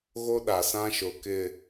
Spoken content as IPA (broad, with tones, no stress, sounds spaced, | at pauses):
ɣ o˦ ɗ a˨ s ã˦ ʃ ʊ˨ k ɪ˨